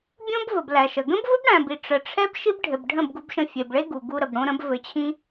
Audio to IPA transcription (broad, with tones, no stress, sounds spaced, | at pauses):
bʲ õ˦ b v ə˨ b l æ˨ ʃ ə˨ ɡ ə̃˦ b v ə˦ b ɽ æ̃˨ b i˨ ʈ͡ʂ ə˨ ʈ͡ʂʰ ɛ˦ b ʃ i˦ b ɖʱ ɘ˨ b ɖʱ ə̃˦˨ b ɡ u˧ b ʃ ə̃˧ fʲ e˨ b ɭ e˦ ɡ u˨ ɡ u˧ ɾ ə˨ b ɽ õ˧ ɾ ə̃˨˦ b v ɘ˧ t͡ɕʰ ĩ˦